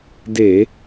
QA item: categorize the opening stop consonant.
plain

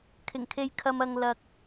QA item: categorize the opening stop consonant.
aspirated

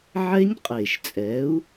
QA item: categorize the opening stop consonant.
ejective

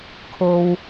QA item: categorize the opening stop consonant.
aspirated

